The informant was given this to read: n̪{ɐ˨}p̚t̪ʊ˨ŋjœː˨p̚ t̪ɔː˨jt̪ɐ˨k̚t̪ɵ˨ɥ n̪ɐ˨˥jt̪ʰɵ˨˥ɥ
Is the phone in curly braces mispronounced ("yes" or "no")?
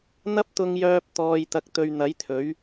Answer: yes